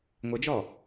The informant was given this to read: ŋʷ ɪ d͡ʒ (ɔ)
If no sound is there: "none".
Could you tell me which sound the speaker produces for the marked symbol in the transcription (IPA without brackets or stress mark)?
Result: ɔ